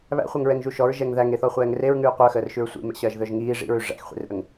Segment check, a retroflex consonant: present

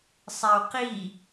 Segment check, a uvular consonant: present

